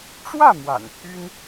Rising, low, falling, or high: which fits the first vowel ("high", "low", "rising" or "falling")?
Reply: falling